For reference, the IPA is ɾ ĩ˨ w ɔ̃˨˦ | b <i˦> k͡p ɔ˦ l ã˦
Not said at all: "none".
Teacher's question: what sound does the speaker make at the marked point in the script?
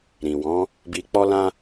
i˧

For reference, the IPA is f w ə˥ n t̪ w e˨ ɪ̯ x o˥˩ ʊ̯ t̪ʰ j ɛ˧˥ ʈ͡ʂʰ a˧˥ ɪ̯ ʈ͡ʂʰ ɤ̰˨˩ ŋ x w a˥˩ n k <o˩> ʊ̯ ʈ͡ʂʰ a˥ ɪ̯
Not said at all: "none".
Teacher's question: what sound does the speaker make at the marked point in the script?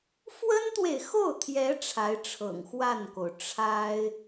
o˩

